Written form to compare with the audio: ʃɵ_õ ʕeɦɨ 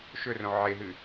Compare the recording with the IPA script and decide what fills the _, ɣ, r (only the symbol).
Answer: r